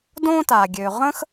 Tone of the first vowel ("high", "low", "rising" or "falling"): high